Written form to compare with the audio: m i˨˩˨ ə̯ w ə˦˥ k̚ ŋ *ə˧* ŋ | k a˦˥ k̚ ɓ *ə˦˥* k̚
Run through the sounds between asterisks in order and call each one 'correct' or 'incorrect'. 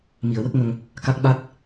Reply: correct, incorrect: a˦˥

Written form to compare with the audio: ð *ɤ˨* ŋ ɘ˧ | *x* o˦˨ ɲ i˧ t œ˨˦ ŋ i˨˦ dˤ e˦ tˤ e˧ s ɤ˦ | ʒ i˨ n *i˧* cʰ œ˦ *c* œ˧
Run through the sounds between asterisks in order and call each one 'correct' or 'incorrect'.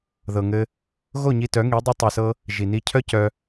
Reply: correct, incorrect: ɣ, correct, correct

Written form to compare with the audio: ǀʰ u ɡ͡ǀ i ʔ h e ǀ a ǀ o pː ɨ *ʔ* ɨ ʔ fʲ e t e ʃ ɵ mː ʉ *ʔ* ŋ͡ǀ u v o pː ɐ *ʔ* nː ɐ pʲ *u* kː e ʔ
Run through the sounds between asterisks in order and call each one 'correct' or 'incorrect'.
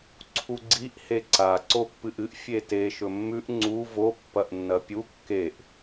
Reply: correct, correct, correct, correct

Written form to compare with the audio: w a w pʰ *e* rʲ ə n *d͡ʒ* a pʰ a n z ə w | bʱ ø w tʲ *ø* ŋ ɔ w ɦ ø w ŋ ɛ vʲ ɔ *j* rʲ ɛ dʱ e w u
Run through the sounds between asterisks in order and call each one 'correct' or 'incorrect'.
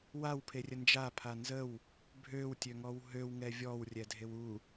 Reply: correct, correct, correct, incorrect: w

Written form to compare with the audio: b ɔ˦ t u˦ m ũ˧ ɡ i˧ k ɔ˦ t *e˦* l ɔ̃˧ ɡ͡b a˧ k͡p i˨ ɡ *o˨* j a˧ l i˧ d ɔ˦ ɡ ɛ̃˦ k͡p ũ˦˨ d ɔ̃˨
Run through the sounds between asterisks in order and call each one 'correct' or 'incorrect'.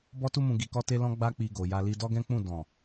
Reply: correct, correct

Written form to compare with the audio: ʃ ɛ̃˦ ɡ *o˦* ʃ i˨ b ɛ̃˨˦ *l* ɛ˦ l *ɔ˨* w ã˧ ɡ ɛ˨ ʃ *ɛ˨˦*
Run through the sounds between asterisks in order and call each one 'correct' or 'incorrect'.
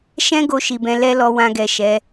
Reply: incorrect: o˧, correct, incorrect: ɔ˧, correct

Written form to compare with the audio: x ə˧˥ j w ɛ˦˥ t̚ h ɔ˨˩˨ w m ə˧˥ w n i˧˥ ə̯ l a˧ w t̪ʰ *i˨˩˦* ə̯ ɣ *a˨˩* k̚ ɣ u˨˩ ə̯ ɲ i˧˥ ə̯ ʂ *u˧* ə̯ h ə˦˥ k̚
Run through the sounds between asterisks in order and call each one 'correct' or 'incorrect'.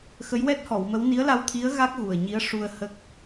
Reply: incorrect: i˧˥, incorrect: a˦˥, correct

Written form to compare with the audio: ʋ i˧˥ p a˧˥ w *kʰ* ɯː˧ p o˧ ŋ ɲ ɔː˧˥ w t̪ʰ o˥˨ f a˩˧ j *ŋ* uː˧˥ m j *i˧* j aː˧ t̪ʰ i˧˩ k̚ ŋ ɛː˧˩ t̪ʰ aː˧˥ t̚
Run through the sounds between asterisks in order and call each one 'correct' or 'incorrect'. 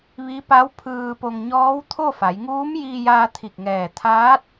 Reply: incorrect: pʰ, correct, incorrect: iː˧

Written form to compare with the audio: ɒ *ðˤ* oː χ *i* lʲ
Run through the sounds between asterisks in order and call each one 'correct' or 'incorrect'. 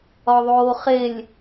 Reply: correct, incorrect: e

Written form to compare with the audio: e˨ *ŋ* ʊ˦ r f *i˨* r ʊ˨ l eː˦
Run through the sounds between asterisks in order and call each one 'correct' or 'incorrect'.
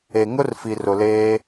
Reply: correct, correct

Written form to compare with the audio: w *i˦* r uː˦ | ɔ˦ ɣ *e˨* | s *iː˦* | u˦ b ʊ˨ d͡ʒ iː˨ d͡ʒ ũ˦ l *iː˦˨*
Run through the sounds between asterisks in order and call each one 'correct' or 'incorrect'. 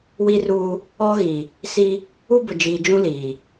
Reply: correct, incorrect: i˨, incorrect: i˦, incorrect: iː˨

